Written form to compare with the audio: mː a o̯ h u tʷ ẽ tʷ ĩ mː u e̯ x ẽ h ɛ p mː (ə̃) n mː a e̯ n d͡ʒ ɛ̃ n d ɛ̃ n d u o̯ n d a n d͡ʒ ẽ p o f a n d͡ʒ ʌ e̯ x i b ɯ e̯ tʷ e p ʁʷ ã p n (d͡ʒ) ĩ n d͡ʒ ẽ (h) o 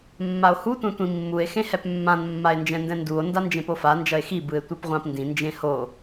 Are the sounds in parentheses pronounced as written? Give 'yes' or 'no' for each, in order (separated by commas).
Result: no, no, yes